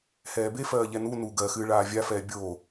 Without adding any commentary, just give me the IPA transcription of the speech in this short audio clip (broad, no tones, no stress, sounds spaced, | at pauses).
h ɛː b e f ɜː ʎ ɛ n u n u ɡ ɜ x ɨː ɭ aː vʲ a f ɛː bʲ oː